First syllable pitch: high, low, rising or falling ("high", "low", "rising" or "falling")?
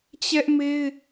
high